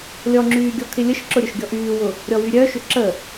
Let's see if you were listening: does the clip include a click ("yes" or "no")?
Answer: yes